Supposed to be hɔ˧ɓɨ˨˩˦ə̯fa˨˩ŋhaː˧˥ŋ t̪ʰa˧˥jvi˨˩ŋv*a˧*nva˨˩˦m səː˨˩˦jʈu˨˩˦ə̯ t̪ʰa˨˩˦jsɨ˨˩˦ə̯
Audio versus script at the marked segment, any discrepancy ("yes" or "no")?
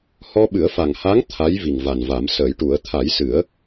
yes